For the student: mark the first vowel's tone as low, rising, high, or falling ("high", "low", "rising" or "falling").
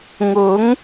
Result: rising